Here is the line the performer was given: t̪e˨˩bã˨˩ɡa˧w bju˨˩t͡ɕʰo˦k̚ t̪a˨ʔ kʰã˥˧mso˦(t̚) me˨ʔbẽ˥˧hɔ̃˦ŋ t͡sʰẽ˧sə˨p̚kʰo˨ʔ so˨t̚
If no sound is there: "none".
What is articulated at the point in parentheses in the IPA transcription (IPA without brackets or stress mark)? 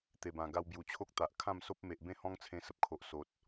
p̚